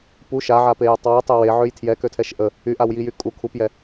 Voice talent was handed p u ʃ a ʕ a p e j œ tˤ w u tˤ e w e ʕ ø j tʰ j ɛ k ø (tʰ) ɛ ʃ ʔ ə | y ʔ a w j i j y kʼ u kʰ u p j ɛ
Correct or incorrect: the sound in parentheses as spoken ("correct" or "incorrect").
correct